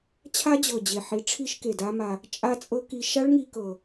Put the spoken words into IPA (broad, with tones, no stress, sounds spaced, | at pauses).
t͡ɕʰ a˦˥ d͡ʑ ɤ˨˩ d͡ʑ e˨˩ ħ i˩˥ ʈ͡ʂʰ i˦˥ ʃ k e˨˩ d a˦˥ m a˧ | t͡ʃʼ a˦˥ t͡sʼ ɤ˦˥ k i˧ ʃ a˦˥ ɭ ŋ i˧ k ɤ˨˩